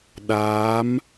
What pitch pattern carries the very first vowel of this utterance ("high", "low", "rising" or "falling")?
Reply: rising